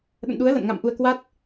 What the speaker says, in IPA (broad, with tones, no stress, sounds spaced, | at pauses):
ɗ ə̰˧˨ n ɗ u˨˦ ə̯ l ə̰˧˨ n ŋ a̰˧˨ m ʔ u˧ ə̯ k w a˦˥ t̚